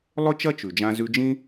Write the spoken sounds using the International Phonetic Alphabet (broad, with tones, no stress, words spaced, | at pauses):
lˠɵ˥t͡ʃɐ˥ t͡ʃʉ˩d͡ʒã˧ zʉ˧d͡ʒĩ˥